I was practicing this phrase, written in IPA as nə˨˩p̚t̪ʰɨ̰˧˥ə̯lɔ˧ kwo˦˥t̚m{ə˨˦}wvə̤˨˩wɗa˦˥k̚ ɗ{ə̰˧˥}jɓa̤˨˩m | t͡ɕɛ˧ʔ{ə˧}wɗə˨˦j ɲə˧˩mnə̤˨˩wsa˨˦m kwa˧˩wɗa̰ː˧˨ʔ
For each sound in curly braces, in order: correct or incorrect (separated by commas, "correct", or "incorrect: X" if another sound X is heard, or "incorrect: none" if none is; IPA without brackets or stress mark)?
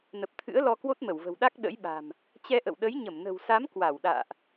incorrect: ə˧˩, correct, incorrect: ə̰˧˨